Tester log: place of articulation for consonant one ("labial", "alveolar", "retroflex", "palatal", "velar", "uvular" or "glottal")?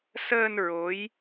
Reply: alveolar